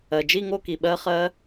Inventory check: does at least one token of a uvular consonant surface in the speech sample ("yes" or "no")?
yes